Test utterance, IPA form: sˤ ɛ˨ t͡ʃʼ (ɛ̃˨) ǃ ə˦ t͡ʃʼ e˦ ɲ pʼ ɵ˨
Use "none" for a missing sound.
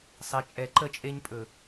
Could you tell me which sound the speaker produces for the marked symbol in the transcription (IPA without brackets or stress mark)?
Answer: ɛ˨